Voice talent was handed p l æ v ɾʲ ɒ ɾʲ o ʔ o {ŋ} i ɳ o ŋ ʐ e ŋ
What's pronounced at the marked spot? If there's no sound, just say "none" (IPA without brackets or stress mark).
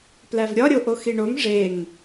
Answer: x